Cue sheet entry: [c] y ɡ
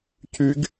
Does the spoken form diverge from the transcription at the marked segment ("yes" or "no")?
no